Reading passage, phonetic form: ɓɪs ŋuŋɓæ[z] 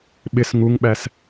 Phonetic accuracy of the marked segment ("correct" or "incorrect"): incorrect